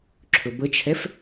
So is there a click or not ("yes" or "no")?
yes